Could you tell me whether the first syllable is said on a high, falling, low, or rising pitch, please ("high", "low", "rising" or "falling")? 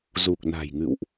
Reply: low